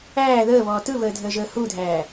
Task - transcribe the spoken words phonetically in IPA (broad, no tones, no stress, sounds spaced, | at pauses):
æː ð əː β ɔː t ɯ β əː dʱ əː ʒ əː h u dʱ æː